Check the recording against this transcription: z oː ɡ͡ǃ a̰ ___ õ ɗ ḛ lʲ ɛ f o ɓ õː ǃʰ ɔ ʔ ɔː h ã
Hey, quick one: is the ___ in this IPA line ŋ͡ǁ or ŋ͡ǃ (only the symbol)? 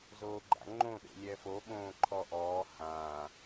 ŋ͡ǃ